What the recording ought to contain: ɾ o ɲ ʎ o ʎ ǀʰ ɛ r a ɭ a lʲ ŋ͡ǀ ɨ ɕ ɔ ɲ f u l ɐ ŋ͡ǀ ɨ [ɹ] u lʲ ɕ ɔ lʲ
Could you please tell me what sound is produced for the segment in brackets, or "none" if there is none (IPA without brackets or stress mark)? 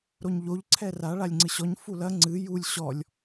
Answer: j